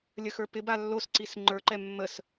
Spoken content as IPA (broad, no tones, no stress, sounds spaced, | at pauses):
lʲ ə x ə˞ p ɪ b a lː o s ǀ i s ŋ͡ǃ ə˞ ǃ ɛ mː ə s